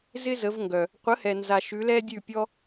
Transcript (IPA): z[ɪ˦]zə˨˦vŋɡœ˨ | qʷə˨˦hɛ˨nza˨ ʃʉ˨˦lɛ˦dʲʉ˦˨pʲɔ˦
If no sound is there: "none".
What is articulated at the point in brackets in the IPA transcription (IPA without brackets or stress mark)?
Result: ɪ˦